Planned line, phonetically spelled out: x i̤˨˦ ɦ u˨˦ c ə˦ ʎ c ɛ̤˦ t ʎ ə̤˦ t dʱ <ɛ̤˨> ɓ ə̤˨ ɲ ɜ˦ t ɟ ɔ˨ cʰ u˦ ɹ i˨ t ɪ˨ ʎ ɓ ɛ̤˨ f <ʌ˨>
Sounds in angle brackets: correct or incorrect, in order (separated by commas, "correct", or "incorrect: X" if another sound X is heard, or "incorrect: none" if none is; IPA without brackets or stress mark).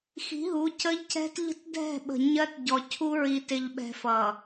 incorrect: ɛ̤˦˨, correct